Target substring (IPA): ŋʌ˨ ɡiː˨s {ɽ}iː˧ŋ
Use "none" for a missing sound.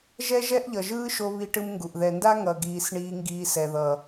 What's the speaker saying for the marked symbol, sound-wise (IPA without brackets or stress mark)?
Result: ɳ